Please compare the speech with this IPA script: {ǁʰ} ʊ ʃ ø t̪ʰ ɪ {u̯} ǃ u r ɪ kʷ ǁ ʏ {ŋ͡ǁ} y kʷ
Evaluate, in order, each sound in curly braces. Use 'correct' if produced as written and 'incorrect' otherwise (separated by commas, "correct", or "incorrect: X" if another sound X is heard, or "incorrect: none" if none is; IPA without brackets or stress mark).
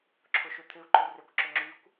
correct, correct, correct